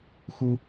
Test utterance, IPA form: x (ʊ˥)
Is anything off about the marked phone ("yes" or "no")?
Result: yes